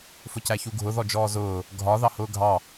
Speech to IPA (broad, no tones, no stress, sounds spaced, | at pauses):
f ʊ c æ ç u ɡʱ ʊ ð ɔ d͡ʒ ɔː z ʊː | ɡʱ ɒ ð ɑ h ʊː ɡʱ ɑ